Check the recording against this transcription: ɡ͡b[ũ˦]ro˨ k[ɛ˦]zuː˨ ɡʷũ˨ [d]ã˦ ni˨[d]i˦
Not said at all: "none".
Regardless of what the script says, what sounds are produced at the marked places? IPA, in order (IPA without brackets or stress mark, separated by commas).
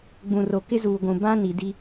ũ˨, ɪ˦, b, d